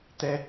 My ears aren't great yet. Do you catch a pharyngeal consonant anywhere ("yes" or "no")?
no